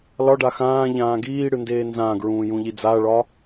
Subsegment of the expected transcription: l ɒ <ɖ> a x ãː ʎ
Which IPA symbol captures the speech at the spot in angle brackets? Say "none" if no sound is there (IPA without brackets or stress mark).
ɖ